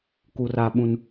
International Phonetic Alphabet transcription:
k u˨ r a˨ ɓ ũ˨ n

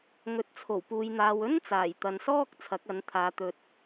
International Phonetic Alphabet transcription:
ŋ ɵ˨ t̚ t͡sʰ o˨˩ w p uː˧ j n̪ aː˧ w ɵ˥ n t͡s aː˨˩ j t̪ ɐ˨ n s ɔː˥ k̚ t͡sʰ ɐ˨˥ k̚ ɐ˨˥ n t̪ʰ aː˨˧ t̪ ɵ˧ t̚

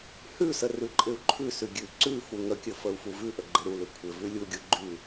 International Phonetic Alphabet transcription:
h ʉ s ə r ʉ ǃʼ ɪ u̯ ǃʰ ʉ s ʉ ɡʲ ʉ ǀ ʉ f u ŋ ə kʲ ə f ə u̯ f u v ʉ ʔ ə ɡ͡ǃ ɪ ɾ u l ʉ kʷʰ ɪ v ʉ lʲ u ɡʲ u ɡ͡ǃ ʉ

